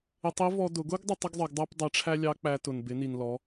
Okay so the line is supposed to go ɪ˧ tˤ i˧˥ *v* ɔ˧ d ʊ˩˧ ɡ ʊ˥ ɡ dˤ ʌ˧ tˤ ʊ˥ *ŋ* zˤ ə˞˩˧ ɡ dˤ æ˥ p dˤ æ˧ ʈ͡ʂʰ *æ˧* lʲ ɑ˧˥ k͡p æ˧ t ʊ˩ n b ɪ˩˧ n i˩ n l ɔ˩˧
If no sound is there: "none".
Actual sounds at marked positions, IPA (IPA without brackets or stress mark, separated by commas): v, ɡ, æ˥